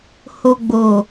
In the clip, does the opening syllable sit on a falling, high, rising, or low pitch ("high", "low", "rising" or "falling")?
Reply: low